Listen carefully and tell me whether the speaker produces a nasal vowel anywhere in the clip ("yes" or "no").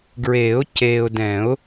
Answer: yes